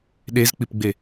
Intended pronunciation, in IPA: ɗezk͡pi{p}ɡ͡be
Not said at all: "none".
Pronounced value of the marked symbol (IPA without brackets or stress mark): p